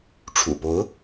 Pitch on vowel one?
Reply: low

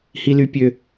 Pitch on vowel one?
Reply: high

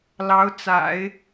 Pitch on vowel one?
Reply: rising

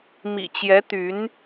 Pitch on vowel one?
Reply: low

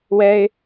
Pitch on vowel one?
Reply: high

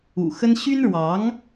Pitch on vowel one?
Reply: low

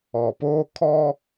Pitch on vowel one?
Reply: low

